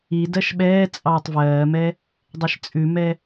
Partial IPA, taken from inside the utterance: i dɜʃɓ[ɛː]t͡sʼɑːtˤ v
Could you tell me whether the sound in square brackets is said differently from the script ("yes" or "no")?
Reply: no